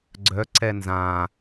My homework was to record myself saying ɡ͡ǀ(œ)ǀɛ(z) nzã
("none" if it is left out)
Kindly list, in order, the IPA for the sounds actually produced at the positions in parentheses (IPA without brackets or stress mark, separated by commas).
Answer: œ, none